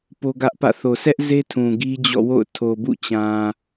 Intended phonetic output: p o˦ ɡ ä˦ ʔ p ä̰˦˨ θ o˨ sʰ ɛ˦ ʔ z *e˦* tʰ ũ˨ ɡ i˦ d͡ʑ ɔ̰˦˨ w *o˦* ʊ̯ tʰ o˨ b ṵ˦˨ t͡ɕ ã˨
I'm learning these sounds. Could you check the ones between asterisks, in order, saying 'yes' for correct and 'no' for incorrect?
yes, no

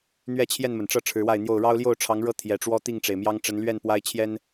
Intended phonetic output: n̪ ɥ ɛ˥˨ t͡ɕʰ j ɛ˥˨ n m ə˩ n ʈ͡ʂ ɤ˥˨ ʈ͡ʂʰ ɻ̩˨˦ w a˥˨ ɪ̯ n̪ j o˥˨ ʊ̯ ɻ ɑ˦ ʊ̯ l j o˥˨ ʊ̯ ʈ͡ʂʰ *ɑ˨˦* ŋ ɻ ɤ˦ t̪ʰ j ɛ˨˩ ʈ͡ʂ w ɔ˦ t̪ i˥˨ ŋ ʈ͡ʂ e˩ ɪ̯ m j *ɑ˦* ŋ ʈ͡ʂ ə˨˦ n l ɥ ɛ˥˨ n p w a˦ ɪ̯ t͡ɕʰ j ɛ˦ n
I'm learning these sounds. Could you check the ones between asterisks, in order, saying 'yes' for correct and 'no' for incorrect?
yes, yes

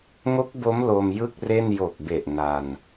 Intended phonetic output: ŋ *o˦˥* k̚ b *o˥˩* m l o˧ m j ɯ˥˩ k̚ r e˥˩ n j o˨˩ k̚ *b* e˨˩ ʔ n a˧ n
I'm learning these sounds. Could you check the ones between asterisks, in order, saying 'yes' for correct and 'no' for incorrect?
yes, no, yes

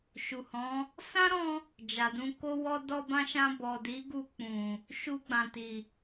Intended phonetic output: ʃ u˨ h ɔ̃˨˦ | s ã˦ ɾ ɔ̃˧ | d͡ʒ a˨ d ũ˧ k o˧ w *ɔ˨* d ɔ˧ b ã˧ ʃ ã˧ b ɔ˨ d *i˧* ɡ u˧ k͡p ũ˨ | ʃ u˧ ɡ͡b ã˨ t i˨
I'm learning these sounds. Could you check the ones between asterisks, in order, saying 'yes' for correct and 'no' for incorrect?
no, no

